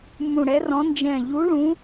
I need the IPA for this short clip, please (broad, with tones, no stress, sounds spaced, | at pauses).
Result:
m ũ˧˩ ɽ ɛ˨˥ r ɔ̃˨˥ n d͡ʒ ɛ̃˧˩ ʎ u˨˥ ɭ ũ˨˥